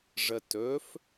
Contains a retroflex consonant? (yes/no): yes